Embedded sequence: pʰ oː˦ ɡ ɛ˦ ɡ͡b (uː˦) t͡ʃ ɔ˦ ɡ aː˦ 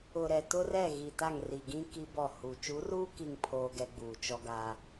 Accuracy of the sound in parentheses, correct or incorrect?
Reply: incorrect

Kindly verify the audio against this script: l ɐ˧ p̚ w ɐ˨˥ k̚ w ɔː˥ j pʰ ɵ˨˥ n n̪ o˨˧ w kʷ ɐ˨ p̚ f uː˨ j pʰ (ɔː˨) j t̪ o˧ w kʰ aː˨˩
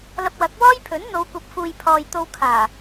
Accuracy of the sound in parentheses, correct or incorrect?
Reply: correct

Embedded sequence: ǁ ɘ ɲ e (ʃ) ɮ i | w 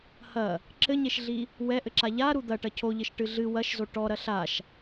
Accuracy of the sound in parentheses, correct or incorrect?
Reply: correct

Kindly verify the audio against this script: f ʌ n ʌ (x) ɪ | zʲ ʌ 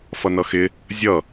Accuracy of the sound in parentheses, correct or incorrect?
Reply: correct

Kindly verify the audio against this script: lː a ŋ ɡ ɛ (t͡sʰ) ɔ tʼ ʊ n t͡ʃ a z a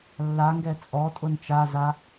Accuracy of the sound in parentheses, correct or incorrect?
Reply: incorrect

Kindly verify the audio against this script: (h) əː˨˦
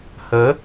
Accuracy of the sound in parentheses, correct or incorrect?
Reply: correct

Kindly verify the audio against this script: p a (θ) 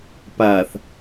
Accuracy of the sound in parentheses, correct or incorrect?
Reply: correct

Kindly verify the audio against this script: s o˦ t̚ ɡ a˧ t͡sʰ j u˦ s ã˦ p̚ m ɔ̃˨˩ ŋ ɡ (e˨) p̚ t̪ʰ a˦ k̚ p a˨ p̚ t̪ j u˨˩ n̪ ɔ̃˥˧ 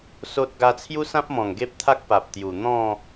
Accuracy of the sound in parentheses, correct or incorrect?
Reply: incorrect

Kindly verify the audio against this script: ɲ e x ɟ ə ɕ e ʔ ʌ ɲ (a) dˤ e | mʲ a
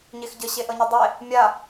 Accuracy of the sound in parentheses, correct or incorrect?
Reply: incorrect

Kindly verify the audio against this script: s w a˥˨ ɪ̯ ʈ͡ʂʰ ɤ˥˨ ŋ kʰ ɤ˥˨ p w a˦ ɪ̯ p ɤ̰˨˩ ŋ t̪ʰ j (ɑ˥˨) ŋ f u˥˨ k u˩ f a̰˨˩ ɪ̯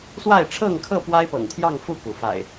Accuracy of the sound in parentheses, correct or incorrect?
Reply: correct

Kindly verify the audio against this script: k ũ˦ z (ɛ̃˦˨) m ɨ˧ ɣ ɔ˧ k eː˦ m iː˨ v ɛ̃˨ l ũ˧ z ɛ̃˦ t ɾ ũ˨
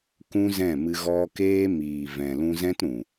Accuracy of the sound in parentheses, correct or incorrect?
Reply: correct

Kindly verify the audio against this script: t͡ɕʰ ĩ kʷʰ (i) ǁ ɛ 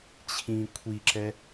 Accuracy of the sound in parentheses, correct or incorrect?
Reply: correct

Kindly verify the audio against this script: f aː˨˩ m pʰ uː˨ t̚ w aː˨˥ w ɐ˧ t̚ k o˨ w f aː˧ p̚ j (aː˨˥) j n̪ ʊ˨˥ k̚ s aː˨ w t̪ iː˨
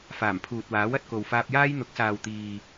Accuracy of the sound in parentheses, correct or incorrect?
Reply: incorrect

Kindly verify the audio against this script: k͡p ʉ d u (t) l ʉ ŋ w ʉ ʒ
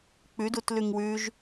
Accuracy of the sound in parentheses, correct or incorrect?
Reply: correct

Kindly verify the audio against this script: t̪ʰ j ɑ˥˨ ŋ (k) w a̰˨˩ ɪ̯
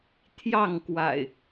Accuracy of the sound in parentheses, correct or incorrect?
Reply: correct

